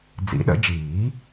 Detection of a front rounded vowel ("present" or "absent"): absent